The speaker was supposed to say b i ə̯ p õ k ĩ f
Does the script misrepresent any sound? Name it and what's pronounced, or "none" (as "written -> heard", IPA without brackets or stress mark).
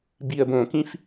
p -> b